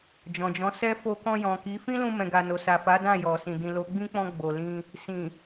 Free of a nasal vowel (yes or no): no